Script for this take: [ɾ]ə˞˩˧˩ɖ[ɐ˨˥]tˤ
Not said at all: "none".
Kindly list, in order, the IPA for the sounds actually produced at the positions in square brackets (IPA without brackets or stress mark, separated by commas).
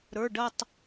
ɾ, ɐ˦˨